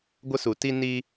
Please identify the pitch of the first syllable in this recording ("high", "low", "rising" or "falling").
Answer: high